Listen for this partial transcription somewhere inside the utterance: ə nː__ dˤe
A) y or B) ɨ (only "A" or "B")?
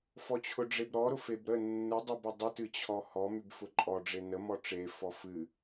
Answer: B